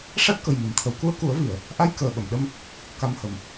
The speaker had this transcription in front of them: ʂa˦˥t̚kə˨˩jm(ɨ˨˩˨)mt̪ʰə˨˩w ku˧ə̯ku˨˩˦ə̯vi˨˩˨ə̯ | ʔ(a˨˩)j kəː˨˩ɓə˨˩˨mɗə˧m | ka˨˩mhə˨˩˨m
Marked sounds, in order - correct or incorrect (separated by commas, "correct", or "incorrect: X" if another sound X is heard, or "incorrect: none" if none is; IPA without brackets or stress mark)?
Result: correct, incorrect: a˧